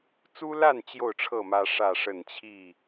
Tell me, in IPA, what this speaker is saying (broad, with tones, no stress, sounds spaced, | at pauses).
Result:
t͡s u˦ l a˥˨ n t͡ɕ j o˥˨ ʊ̯ ʈ͡ʂʰ ɤ˥˨ m ä˦ ʂ ä˥˨ ʂ ə˥˨ n t͡ɕʰ i˥˨